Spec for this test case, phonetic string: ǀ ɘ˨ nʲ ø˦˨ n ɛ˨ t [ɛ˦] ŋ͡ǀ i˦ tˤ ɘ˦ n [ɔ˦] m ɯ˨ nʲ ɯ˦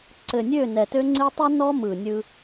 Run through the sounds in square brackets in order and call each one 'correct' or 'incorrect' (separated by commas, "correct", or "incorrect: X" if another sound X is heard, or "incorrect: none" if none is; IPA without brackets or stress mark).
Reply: incorrect: ø˦, correct